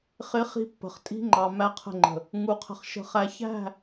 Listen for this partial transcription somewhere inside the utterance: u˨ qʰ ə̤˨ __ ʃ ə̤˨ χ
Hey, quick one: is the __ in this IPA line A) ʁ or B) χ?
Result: B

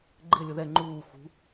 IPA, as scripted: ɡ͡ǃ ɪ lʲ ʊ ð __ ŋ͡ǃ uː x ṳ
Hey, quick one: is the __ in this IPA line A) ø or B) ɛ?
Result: B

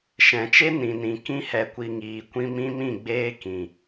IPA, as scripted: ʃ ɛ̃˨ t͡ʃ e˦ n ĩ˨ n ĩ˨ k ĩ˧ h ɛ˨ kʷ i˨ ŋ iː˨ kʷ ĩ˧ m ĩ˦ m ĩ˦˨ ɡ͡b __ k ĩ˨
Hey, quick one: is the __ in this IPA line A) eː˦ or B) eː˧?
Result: A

